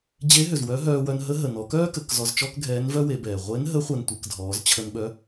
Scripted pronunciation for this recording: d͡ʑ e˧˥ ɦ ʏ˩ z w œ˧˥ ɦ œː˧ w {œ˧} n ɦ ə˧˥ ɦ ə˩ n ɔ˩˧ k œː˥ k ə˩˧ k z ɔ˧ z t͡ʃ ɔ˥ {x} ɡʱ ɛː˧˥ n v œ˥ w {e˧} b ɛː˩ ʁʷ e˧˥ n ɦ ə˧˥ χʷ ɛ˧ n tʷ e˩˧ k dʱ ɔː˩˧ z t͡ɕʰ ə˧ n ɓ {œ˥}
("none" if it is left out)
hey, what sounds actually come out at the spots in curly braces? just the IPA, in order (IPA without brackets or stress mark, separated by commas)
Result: œ˧, k, e˩˧, œ˧˥